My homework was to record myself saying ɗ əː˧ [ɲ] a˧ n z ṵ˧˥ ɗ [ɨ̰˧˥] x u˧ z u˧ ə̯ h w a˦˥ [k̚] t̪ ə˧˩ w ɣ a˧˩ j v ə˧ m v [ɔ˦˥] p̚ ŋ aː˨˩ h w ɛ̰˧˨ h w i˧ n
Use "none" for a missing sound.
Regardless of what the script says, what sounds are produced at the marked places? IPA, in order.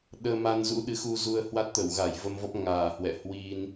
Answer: m, ɨ˨˦, t̚, ɔ˦˥

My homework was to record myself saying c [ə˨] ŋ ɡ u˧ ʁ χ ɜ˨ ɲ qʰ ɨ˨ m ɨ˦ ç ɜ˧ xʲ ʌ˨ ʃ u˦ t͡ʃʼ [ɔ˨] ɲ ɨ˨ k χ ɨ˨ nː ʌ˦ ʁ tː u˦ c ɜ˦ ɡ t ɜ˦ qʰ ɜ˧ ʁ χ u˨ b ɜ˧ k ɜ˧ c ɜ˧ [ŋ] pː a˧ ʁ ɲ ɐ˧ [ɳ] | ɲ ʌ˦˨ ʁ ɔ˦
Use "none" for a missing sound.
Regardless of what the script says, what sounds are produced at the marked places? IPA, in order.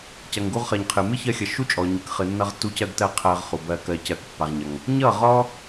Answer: ɐ˨, ɔ˨, k, ŋ

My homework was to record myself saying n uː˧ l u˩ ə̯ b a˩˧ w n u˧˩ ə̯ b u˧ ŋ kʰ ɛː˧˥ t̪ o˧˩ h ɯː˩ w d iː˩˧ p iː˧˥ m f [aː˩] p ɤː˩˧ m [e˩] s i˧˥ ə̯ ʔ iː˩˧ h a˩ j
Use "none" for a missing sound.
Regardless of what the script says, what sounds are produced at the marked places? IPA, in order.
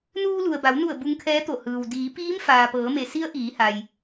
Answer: aː˩, e˩

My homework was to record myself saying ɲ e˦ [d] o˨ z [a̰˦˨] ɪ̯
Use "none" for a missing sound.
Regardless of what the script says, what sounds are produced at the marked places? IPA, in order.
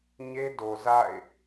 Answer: d, a̰˦˨

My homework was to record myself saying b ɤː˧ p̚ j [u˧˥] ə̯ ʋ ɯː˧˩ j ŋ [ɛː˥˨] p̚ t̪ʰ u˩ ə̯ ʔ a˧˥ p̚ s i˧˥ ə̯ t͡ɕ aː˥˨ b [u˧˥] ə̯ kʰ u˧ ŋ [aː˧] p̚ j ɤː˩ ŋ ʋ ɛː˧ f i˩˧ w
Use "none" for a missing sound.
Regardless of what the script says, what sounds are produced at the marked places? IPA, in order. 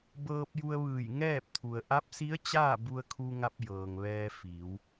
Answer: u˧, ɛː˥˨, u˧, a˧

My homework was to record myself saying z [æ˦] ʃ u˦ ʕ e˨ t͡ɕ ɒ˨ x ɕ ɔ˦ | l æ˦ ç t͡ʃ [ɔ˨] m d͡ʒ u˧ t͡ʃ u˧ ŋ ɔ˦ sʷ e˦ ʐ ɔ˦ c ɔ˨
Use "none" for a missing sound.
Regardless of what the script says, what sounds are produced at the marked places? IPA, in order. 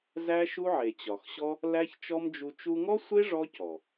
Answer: æ˦, ɔ˦

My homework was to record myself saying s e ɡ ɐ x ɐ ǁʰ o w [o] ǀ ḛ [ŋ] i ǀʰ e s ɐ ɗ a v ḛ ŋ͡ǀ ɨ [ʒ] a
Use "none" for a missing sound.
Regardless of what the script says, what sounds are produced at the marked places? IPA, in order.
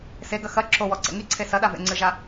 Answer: ɔ, ŋ, ʒ

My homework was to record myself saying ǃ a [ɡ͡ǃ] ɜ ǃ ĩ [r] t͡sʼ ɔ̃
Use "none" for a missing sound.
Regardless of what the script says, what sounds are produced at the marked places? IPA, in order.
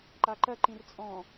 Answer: ǃ, r

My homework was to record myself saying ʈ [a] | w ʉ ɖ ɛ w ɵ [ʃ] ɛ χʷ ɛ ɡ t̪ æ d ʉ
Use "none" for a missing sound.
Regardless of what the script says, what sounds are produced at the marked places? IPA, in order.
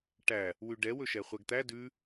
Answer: æ, ʃ

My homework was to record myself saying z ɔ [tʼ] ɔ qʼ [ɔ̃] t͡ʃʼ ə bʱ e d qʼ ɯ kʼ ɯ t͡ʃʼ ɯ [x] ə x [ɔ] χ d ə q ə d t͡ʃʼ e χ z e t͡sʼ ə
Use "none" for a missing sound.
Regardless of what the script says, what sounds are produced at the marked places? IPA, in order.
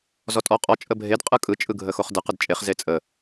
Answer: tʼ, ɔ, ɡʱ, o

